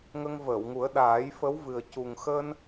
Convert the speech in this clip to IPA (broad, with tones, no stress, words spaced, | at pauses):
ŋə˧ŋvəː˨˩˨wŋu˨˩˦ə̯ ɗaː˨˩˦jfə˧˥wvɨ˨˩ə̯ cu˨˩ŋxəː˧n